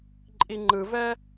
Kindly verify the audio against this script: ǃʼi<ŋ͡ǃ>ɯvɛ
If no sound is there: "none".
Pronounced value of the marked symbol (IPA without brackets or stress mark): ŋ͡ǃ